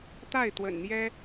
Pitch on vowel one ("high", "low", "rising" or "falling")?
falling